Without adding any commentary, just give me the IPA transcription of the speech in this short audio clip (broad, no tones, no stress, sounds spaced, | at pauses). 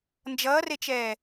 n d͡ʒ ʌː r e t͡ʃ ɛː